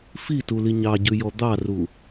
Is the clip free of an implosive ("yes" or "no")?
yes